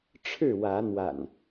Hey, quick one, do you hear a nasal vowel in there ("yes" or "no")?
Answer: no